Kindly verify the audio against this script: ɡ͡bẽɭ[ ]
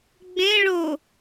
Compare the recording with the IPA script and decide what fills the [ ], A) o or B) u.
A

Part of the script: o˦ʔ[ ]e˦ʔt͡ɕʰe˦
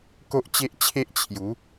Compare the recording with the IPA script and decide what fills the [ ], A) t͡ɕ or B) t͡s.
A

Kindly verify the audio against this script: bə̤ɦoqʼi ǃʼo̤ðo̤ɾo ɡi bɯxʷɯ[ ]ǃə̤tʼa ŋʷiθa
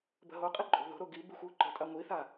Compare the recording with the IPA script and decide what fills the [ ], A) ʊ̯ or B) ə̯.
A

